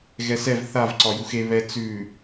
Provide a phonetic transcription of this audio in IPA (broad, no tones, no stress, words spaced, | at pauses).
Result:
ɣɛsɛv θav ǀɒjuxe βɛ t͡sʉ